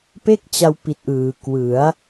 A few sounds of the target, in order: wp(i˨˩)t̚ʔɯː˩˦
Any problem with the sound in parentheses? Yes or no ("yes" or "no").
no